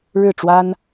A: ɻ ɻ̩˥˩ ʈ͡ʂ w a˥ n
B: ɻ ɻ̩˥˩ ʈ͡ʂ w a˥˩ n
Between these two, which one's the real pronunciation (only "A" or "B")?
A